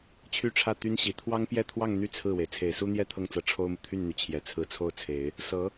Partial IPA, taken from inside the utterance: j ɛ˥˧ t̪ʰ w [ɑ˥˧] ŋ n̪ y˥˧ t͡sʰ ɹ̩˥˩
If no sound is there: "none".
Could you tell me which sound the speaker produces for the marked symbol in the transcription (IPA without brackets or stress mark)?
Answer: ɑ˥˧